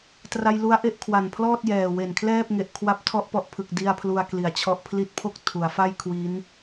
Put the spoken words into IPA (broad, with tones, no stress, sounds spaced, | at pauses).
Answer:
t r a˧ j l u˦˥ a̯ ʔ e˦˥ ʔ kʰ w a˨˩ n pʰ l ɔː˥˩ t̚ j ɛː˨˩ w e˨˩ n kʰ l ɛː˥˩ p̚ ŋ e˨˩ ʔ kʰ w a˥˩ p̚ tʰ ɔ˦˥ ʔ p ɔ˨˩ ʔ pʰ ɯ˨˩ k̚ d i˧ a̯ pʰ l u˧ a̯ k l i˨˩ a̯ t͡ɕʰ ɔ˦˥ ʔ pʰ l i˦˥ t̚ pʰ o˥˩ k̚ tʰ u˩˦ a̯ f a˥˩ j kʰ w i˦˥ n